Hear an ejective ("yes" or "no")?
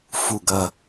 no